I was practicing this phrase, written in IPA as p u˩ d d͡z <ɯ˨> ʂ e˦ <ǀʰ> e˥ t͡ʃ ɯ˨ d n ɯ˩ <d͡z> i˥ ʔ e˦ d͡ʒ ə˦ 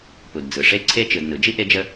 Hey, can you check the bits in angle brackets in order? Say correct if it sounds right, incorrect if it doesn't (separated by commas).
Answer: incorrect, correct, incorrect